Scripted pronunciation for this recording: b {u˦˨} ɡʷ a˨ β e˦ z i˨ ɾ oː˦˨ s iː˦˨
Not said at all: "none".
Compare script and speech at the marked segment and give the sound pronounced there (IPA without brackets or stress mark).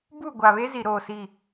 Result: u˦˨